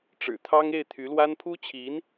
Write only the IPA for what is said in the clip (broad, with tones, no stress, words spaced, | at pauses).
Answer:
ʈ͡ʂɻ̩˨˩t̪ʰɑ˥ŋ e˥˩ɪ̯t̪ʰy˧˥lwa˥n pʰu˥t͡ɕʰi˧˥n